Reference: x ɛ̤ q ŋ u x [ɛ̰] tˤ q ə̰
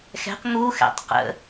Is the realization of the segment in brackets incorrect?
no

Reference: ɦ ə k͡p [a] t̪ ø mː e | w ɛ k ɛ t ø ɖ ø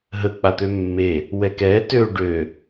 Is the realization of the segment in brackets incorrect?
no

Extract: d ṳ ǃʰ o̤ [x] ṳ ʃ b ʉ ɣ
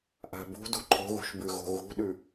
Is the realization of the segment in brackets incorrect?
yes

